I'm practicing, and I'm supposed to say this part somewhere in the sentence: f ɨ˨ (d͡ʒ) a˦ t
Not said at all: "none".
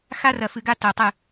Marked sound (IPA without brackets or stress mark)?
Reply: ɡ